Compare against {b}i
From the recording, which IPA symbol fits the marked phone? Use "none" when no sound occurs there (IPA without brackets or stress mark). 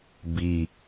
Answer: b